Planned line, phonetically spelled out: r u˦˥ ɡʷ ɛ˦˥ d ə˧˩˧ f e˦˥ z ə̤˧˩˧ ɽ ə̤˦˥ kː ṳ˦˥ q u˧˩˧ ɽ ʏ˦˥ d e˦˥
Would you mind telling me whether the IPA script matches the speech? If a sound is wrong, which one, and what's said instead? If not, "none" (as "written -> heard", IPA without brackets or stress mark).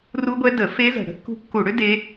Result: q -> kː